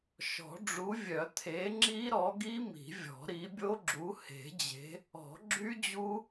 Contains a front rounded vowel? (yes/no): yes